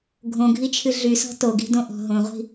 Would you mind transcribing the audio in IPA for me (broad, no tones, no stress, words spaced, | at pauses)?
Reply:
ɡʱõɡʱit͡ʃʰɨ ɮysɔ̤ toɡi̤dõʔɔ̤ ɦõʁʷi̤